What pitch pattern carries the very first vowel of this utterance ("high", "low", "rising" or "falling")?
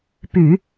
low